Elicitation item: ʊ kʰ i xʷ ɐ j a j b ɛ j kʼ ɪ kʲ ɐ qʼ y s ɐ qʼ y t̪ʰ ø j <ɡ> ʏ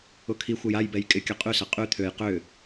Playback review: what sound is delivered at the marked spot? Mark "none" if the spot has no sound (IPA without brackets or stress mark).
q